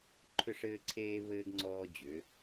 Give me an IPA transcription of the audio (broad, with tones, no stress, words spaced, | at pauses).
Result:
ǃʰʏ˦˨ʂɘː˦ǀʰeː˦βɘː˦ɡ ŋ͡ǀɔː˦d͡ʑʏ˨˦